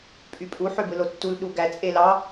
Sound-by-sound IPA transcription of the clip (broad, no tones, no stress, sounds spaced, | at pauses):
pʼ y pʼ u ħ ø b ɯ l o tː u l ɗ u ɡ æ t͡sʼ e l ɑ